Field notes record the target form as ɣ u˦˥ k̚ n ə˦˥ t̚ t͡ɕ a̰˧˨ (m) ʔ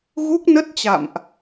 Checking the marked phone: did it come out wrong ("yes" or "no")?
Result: no